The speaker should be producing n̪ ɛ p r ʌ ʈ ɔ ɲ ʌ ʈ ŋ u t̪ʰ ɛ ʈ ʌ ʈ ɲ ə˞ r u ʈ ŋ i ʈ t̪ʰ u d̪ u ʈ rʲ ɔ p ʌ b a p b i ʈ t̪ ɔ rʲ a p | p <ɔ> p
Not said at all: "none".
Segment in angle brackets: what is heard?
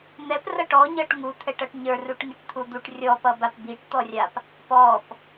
ɔ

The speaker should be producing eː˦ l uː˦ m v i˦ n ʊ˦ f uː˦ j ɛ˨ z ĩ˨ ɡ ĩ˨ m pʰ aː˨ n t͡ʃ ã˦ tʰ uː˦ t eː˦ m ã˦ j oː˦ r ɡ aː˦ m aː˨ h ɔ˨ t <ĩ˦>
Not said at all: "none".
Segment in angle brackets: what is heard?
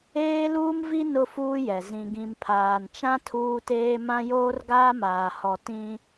ĩ˦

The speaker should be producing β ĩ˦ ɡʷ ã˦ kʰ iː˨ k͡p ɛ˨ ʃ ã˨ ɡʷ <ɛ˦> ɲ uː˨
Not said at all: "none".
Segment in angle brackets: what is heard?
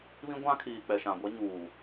ɛ˦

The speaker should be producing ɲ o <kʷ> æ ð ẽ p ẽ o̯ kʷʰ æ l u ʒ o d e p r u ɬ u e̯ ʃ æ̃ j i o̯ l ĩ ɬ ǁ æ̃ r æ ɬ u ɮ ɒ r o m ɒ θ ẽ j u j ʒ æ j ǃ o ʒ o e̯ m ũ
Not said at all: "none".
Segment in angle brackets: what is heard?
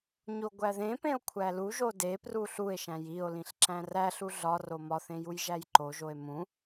ɡʷ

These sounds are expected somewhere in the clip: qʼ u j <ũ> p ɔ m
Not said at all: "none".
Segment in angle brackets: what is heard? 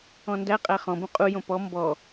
õ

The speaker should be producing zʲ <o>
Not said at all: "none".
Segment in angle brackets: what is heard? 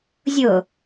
o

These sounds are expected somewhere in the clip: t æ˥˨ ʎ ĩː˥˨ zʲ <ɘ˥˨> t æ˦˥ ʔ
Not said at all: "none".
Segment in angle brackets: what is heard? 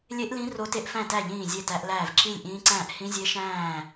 e˥˨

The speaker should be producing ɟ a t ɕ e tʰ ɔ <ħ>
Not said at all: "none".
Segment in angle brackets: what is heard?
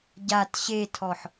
ħ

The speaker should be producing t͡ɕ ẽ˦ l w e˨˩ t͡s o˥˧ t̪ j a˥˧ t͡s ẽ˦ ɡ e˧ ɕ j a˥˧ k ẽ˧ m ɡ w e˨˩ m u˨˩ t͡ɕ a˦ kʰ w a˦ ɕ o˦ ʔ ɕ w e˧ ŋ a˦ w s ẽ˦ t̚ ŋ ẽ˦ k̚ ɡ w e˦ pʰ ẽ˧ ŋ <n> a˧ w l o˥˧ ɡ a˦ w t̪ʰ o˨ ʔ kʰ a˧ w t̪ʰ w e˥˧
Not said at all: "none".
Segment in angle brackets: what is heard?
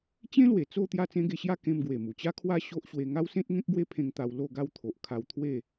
t̪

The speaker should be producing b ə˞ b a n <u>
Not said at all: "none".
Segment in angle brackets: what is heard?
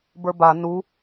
u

